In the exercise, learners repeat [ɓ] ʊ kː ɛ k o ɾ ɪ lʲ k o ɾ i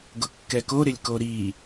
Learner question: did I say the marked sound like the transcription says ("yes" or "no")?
no